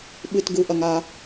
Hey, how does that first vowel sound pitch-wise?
high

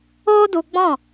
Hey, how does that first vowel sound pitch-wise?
high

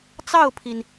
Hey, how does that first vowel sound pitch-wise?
falling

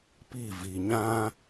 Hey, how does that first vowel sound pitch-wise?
falling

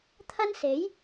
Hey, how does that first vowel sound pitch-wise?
high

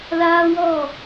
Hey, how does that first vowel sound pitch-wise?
high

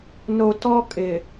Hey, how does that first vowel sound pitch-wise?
low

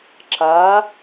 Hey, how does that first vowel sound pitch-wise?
rising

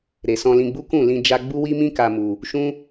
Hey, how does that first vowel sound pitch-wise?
low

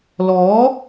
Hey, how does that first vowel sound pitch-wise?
rising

